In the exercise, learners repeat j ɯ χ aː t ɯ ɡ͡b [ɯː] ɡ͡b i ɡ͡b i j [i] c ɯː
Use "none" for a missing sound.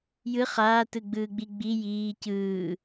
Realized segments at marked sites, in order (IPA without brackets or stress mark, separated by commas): ɯː, iː